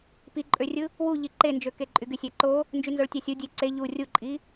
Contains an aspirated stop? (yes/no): no